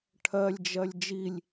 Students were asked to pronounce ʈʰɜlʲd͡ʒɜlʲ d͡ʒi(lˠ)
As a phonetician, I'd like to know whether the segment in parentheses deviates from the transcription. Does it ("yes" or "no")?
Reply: yes